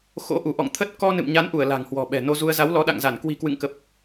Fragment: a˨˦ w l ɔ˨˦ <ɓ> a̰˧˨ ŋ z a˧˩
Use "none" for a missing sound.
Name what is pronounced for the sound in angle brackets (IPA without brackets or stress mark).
ɗ